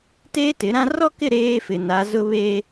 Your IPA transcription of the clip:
t eː˦ t ɪ˨˦ ɾ ã˦ r ɔ˦ k ɪ˦˨ ɾ eː˦ f ɪ˨ n a˨˦ z ʊ˦ β eː˦

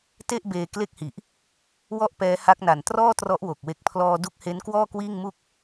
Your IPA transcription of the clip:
t e˥˩ ʔ b eː˧ k l e˥˩ k̚ h i˨˩ ʔ | w ɔ˥˩ ʔ p ɛː˦˥ h a˦˥ k̚ n a˨˩ n t r ɔː˥˩ t r ɔ˦˥ ʔ w o˨˩ k̚ w e˨˩ k̚ pʰ l ɔː˧ d u˦˥ k̚ h e˦˥ n k w ɔː˥˩ k w iː˥˩ ŋ m u˥˩ k̚

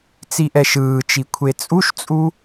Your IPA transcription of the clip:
t͡s i ʔ ɛ ʃ ɯː t͡ʃ i kʷʰ e t͡sʼ u ʃ t͡sʼ u

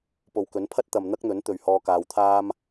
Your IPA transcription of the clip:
p o˨ w k ɵ˨˥ n pʰ ɐ˥ t̚ t̪ ɐ˨ m n̪ ɐ˥ k̚ n̪ ɵ˨˥ n t̪ ɵ˨ ɥ h ɔː˧ k aː˨ w t̪ʰ aː˥ m

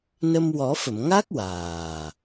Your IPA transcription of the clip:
n ə˧ m w ɔ˨˩˦ f ə˨˩˨ m ŋ a˦˥ k̚ w aː˨˩

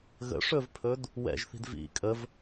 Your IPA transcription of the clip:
ɣ ə̰ ʂ ɵ v pʰ ɵ d | w ɛ̰ ʒ θ i̤ d v ḭ kʼ ə v

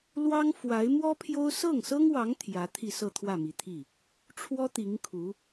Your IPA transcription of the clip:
l w ɑ˥ ŋ f w a˧˥ ɪ̯ m w ɔ˥ pʰ j o˥ ʊ̯ s ɤ˥˩ ŋ s ɤ˥ ŋ w ɑ˧˥ ŋ t̪ʰ j ä˧˥ t̪ʰ i˥˧ s ɤ˥˧ t̪ʰ w ä˥˩ m i˨˩ t̪ʰ i˥˩ | ʈ͡ʂʰ w ɔ˥ t̪ i˧˥ ŋ kʰ u˧˥

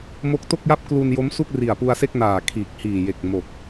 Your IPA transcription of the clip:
m o˦˥ k̚ t o˥˩ k̚ j a˥˩ p̚ k l u˧ n j o˦˥ m s u˥˩ k̚ r i˨˩ a̯ p u˧ a̯ s e˥˩ k̚ n aː˨˩ kʰ iː˨˩ k̚ h iː˨˩ j e˨˩ k̚ m o˨˩ k̚

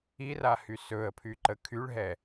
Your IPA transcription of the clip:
i r a h y s ɵ ə̯ pʰ y ǃ ə kʰ y ɭ ɦ ɛ

